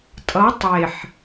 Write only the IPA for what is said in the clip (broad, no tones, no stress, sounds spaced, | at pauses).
tʼ ʌ tˤ e ħ